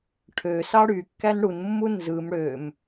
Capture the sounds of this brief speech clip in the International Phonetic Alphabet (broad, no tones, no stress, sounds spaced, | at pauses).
ʈʰ ø s ɑ ɽ y kː æ n ɽ u n mː u n z ɯ m ɽ ø m